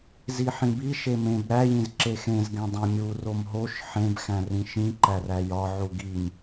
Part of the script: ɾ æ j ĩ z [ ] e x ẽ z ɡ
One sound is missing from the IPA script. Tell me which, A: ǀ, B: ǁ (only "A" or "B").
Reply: B